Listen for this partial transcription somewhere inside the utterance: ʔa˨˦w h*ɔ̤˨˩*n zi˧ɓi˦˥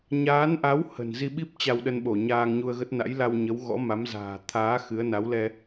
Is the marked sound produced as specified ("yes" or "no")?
no